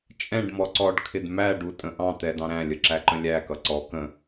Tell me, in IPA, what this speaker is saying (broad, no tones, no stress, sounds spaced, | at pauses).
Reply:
t͡ʃʼ ɛ̃ ɖ m ɔ ǀ ɔ ɖ kʰ ɪ d m æ ɖ u tʼ ə̃ ʔ ɑ̃ t̪ ɛ d ɑ̃ ɾ æ̃ lʲ ə ǁ æ ǃ ə̃ lʲ æ k ʌ ǀ ɔ k ə̃